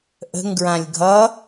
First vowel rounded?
no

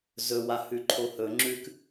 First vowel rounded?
yes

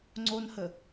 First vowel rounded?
yes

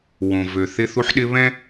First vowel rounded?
yes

